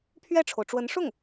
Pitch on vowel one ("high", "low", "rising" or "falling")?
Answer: falling